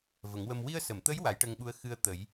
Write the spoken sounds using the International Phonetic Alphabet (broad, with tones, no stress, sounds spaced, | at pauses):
v ə˨˩˦ ŋ w ə˧ m w i˧ ə̯ s ə˨˩˨ m t̪ ə˧˥ j w a˨˩˦ j ʈ ə˧ ŋ ɓ u˧˥ ə̯ x ɨ˧ ə̯ t̪ ə˨˩˦ j